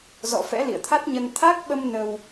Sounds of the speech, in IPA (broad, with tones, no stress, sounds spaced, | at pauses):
z ɔ̰˧˨ f ɛ̰˧˥ l ḭ˧˨ ə̯ t̪ʰ a˦˥ t̚ ɲ ə˧ n t̪ʰ a˦˥ k̚ ɓ ə˧ m n ə˧ w